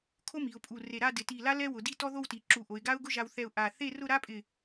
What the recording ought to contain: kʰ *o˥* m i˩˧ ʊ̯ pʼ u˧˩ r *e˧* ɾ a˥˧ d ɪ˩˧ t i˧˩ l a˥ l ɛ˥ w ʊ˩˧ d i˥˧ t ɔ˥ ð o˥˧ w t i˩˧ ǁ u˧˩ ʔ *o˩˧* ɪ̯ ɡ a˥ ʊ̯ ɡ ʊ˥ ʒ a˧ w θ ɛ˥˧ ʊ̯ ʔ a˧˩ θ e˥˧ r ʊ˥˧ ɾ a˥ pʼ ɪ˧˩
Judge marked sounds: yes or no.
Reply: yes, no, yes

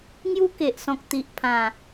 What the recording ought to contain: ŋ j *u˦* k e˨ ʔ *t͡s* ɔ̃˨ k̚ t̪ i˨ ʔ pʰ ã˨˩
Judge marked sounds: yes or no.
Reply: yes, no

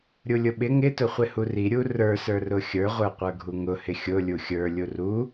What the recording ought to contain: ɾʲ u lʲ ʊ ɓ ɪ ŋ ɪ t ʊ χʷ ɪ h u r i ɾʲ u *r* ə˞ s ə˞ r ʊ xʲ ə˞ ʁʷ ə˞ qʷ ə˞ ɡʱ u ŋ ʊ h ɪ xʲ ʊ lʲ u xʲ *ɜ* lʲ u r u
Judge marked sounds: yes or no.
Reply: yes, no

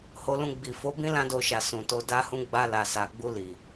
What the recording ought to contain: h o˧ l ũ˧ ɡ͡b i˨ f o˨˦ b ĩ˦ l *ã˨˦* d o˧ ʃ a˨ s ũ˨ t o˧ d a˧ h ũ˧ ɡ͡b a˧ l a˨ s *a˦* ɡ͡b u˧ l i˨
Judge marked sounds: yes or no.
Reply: no, no

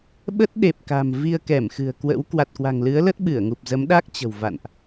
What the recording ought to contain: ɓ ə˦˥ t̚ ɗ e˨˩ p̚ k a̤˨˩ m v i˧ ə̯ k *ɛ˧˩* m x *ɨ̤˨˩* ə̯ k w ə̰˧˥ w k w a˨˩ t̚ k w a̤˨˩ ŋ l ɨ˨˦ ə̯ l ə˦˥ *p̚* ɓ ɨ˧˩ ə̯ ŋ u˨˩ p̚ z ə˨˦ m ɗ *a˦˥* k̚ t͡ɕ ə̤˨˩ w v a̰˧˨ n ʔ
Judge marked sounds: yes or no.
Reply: yes, yes, no, yes

